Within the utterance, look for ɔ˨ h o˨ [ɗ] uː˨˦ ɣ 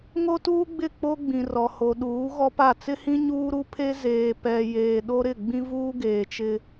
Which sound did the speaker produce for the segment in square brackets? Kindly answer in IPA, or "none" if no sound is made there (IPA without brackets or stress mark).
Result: ɗ